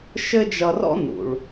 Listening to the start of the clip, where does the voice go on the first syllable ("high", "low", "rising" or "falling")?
high